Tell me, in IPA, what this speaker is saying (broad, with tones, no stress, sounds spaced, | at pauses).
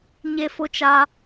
ɲ e˦ f ʊ˦ t͡ʃ a˦